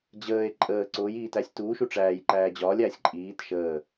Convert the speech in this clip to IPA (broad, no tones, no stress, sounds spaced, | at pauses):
d͡ʑ əː e̯ ǃʼ əː ǀ ʊː j iː t æ sʲ t uː ʃ u ʈ͡ʂ æː j ǃ æː d͡ʑ ɒː lʲ æː sʲ ǃʼ iː t ʃ əː